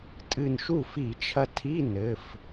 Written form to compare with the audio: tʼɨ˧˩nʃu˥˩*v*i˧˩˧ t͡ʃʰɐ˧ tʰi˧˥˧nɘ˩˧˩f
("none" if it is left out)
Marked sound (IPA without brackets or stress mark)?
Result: f